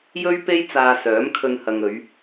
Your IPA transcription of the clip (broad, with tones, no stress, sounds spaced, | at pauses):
j ɵ˥ ɥ p e˥ j t͡s aː˧ s œː˨˥ m kʰ ɵ˧ n h ɐ˨ ŋ ɵ˨˧ ɥ